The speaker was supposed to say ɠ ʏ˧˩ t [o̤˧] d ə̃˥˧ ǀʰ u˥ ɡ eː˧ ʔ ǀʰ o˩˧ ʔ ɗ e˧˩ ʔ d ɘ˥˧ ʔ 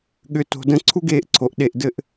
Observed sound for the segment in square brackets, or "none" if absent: o̤˧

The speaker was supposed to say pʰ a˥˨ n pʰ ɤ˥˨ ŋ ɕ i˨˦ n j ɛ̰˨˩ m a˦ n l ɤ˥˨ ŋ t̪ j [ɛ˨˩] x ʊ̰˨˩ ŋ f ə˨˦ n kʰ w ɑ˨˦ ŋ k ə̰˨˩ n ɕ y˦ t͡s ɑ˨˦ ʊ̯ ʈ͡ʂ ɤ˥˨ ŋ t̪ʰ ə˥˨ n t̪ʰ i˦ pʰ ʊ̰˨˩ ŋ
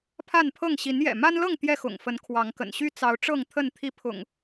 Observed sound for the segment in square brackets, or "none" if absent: ɛ˥˨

